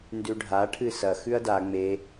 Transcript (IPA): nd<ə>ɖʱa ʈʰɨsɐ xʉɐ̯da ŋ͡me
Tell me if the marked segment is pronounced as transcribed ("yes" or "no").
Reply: no